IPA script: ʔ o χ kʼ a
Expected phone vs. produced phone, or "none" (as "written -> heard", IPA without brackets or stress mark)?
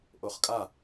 none